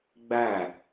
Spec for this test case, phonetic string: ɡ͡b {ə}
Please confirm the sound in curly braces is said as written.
no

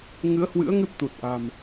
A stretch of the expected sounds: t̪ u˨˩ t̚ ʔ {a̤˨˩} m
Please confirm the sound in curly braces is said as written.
yes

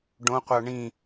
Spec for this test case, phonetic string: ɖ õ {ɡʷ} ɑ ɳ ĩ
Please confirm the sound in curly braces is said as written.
no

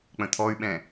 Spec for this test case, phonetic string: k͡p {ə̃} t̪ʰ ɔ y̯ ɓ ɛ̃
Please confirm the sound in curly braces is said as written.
yes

